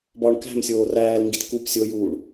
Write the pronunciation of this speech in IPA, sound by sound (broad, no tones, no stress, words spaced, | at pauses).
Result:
bɒɳ kæ̤msʲoː ræːlŋɡit kup sʲojuːɳ